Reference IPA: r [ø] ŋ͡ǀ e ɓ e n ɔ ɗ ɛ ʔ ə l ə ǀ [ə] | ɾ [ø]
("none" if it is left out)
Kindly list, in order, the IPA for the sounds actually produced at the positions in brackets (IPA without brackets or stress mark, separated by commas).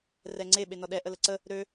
ɛ, ə, ø